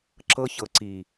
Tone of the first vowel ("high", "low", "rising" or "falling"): high